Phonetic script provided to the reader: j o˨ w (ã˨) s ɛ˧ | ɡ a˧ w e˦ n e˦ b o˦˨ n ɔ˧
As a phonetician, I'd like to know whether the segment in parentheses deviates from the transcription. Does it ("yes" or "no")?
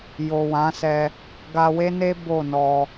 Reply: yes